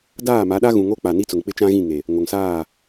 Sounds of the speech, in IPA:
d aː˦˨ m a˨˦ ɗ a˦ ɣ ũ˨ ŋ o˦ k͡p a˨ n i˦ t͡s ʊ˨ ŋ k͡p ɪ˦ t͡ʃ ã˦ ɣ ĩ˦˨ ŋ e˨ | ŋ o˨ ŋ s aː˦˨

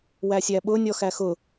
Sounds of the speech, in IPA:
w æ sʲ æ ɓ ʊ nʲ ɔ x æ x ʊ

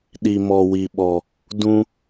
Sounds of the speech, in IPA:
ɗ i˨ m ɔ˨ w i˨ ɓ ɔ˨ | d ũ˦

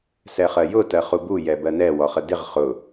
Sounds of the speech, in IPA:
s ɛ χ ɜ j ʊ t ɜ χ u b u j ɛ b ɜ n ɛ w ɔ χ ə d ɪ ʁ χ ʊ

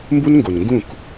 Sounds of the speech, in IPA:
m b u˦ n ŋ ɡ o˨ n ŋ ɡ ũ˦˨ k

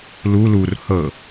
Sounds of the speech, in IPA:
l u l u r h ɤ

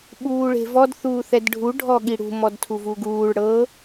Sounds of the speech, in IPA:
ɓ uː ɭ e̤ v ɔ d θ uː θ ɛ d ɖʱ u ɖʱ ɔ ɠ i ɽ ṳ m ɔ d tʰ u v u ɡ uː ɭ ɽ ɤ

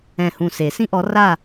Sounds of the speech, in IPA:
ɛ̃˧˩ h ũ˧˩ s e˨˩˦ s ĩ˦ ʔ ɔ˨˦ r a˥˨

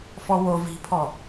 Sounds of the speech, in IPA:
f ɔ w o v i̤ pʰ ɔ

